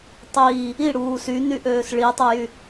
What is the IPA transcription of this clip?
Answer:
tˤ iː | i ɽ uː s y n y ʔ øː s ɭ i tˤ e j y

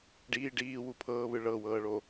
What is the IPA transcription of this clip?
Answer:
ɖ iː ɖ iː w u pʰ ɤː β ɯ ɭ ɤ w ɤː ɭ o

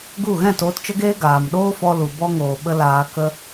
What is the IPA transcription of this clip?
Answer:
ɡ u˦˨ ɣ ɛ̃˦˨ t oː˧ t t͡ʃ ə˦ ɡ eː˦ ɡ aː˨ m ɗ oː˦ f ɔ˧ l u˨ b ɔ˧ ŋ oː˨ ɓ ə˧ l aː˧ k ə˦

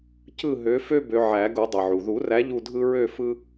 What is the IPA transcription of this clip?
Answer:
c ɯ˦˨ ɦ ø˨˦ f ø˦ b ø˨˦ ʕ æ˨˩˦ ɡ u˨˩˦ dˤ ɯ˩ ʕ u˩ ð u˨˩˦ r æ˨˦ ʎ u˦˨ dʱ ɯ˦ ɹ ø˦˨ f ɯ˦

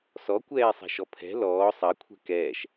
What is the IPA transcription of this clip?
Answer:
s ɔ kʷ ɛː sˤ ɛ̤ ʃ ɔ pʰ ɛ̤ l ɔː sˤ ɐ kʷʰ ɛ̤ k ɛː ʃ

